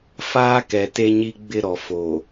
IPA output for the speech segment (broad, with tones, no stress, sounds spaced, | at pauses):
f aː˦ k ɛ˨ t e˦ ɲ i˦ ɡ͡b ɪ˦ ɾ ɔ˨ f o˨